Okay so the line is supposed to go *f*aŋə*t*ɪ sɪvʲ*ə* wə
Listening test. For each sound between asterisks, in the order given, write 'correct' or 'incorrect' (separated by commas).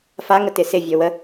correct, correct, incorrect